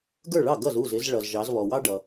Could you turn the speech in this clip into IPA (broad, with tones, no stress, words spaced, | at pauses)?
ɡə˞˥˩ɭɑ˥˩ ɡʌ˥˩zu˥˩zɪ˨˦z ɭʌ˨zʒɑ˨˦zβɔ˨wɑ˥ ɖʌ˨